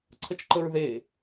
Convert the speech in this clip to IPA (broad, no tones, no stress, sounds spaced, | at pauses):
ǀʰ ə t͡ʃ ǃ ə ɹ ð e